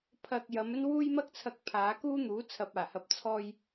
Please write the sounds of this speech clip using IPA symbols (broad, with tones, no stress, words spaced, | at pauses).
pʰɐ˧k̚ jɐ˨˧m ɵ˥n wuː˥jmɐ˥k̚t͡sʰɐ˧k̚pʰaː˨˧ kuː˥n̪uː˨˥ t͡sʰɐ˨p̚aː˨˩hɐ˨˥p̚ t͡sʰɔː˧j